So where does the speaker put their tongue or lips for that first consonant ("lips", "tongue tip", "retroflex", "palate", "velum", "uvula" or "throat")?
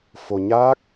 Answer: lips